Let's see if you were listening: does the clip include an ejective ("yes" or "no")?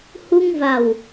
no